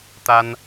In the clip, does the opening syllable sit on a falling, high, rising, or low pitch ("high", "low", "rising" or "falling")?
high